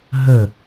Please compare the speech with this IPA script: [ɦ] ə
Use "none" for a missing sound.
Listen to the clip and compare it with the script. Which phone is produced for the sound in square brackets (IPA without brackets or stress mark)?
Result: ɦ